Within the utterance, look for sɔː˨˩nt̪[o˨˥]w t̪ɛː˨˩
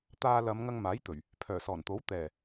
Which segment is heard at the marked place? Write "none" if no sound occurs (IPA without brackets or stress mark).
o˨˥